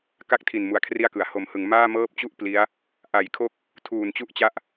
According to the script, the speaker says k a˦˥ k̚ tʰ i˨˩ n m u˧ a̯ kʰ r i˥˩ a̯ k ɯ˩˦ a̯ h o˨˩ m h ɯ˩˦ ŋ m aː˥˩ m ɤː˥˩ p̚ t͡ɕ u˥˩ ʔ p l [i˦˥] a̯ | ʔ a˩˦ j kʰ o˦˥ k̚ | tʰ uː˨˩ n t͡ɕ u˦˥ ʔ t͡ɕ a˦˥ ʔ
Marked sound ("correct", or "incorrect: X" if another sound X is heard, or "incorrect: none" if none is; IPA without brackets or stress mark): correct